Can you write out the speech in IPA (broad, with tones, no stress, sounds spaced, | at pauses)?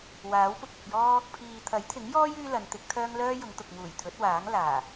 w aː˨˥ w p ʊ˧ k̚ ɐ˨ p̚ j ɔː˥ | pʰ iː˨ t̪ʰ ɐ˨˥ j t̪ʰ ɪ˨˥ ŋ j ɔː˥ j yː˥ l ɐ˨˧ n t̪ ɪ˨˥ k̚ t̪ʰ œː˥ ŋ l œː˥ j ʊ˨˧ ŋ t̪ ʊ˨ k̚ ŋ uː˨˩ j t̪ʰ ɵ˨˥ t̚ w aː˨˥ ŋ l aː˨˩